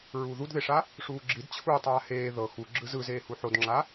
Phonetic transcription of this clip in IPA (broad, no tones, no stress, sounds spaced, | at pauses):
ɹ uː ð u d ð e ʂ a | ʂ uː ɡ͡ǁ i d t͡ɕʰ uː tˤ aː h eː ð ɤ x u ɡ͡ǁ ɯ z ɯ z eː h u ħ o d ŋ͡ǁ a